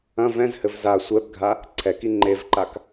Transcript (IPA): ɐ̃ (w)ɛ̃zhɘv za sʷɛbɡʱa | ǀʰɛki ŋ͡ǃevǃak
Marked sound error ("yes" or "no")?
yes